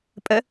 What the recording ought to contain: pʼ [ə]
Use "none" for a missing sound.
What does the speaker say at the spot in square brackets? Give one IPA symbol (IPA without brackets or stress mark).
ə